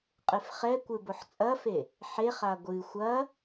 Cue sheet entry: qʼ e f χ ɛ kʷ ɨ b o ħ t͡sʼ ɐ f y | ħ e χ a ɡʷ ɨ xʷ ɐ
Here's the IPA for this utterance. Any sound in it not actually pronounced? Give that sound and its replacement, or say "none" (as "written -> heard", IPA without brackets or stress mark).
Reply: y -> e